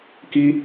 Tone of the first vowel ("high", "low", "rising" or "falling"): high